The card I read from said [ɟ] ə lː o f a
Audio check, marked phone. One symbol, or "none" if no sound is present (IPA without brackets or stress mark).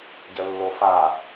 ɟ